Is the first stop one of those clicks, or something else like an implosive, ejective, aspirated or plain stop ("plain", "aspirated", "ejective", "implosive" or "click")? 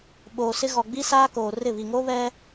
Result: implosive